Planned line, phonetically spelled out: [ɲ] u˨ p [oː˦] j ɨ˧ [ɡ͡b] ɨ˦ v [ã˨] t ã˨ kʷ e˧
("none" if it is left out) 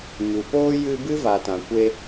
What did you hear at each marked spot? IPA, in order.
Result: ɲ, oː˦, b, a˨

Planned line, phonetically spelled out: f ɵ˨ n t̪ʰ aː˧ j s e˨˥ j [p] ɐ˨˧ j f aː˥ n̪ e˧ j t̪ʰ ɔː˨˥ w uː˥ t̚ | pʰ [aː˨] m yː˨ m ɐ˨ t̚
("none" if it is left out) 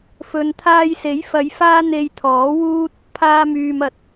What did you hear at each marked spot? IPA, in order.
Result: f, aː˧

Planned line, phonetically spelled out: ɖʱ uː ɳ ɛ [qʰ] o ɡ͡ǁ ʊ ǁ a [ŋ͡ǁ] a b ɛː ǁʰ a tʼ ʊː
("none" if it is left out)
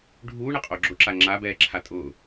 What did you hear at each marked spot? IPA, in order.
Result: qʼ, ŋ͡ǁ

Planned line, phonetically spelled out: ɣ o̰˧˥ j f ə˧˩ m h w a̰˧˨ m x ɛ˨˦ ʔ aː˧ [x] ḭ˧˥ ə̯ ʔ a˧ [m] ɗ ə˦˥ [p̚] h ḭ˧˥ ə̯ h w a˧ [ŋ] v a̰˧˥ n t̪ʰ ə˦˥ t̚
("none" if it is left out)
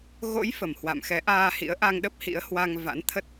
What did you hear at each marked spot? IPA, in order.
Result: h, ŋ, p̚, ŋ

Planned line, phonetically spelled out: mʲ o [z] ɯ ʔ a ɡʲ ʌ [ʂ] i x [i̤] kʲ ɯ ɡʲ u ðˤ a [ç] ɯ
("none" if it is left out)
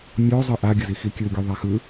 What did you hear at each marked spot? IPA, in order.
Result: zˤ, z, i, x

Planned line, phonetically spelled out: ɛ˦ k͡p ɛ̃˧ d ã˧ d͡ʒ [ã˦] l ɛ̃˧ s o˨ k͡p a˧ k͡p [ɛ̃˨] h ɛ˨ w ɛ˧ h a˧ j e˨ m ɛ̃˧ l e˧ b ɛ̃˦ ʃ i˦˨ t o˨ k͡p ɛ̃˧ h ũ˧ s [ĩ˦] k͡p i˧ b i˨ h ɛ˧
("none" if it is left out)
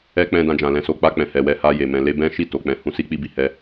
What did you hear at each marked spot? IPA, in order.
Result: ã˨, ɛ̃˨, i˦

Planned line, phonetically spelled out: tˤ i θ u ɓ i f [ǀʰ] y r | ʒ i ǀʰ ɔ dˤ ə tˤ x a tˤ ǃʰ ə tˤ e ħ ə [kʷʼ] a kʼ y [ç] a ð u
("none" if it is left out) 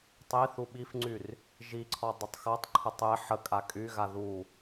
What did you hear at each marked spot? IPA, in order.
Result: ŋ͡ǀ, kʼ, ɣ

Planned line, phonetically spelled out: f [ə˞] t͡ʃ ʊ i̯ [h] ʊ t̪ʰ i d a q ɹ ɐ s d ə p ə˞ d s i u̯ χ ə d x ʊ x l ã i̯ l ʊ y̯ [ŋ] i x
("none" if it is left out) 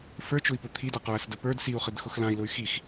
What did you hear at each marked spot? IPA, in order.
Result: ə˞, p, x

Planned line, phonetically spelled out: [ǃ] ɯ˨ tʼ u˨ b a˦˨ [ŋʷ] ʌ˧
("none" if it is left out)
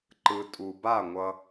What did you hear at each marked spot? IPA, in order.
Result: ǃ, ŋʷ

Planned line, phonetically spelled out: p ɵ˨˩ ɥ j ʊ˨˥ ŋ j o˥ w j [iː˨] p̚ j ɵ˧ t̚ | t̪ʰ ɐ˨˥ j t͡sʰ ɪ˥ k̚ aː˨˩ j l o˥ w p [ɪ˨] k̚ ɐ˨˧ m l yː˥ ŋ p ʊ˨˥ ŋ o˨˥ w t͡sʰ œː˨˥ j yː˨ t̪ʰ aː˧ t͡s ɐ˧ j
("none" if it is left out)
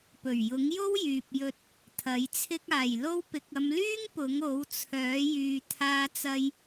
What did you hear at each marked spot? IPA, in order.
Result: yː˨, ɪ˨

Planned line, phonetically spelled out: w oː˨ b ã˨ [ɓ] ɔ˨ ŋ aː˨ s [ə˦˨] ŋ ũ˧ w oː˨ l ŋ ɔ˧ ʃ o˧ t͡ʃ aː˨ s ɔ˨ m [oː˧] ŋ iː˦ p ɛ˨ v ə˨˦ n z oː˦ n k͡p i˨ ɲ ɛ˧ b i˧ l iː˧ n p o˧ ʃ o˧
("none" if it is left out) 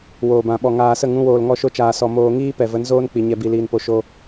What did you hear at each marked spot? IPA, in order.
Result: ɓ, ə˦˨, oː˧

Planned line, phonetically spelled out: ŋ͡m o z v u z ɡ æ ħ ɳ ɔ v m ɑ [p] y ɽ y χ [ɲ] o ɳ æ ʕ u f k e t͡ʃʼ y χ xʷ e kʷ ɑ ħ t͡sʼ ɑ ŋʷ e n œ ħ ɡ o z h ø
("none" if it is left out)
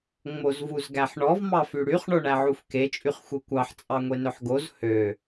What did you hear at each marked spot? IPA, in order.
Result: f, ɳ

